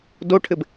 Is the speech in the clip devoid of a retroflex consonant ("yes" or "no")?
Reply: no